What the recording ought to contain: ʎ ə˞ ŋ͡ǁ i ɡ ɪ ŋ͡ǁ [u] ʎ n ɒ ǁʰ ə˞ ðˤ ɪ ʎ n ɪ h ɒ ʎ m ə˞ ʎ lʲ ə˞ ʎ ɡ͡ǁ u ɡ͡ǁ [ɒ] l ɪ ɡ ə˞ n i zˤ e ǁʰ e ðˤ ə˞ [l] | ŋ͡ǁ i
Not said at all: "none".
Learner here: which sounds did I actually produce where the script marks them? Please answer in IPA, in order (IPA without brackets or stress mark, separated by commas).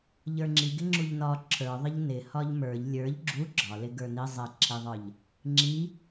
u, ɒ, ʎ